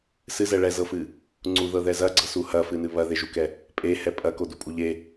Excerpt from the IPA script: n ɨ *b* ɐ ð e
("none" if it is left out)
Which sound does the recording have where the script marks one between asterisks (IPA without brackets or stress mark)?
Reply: β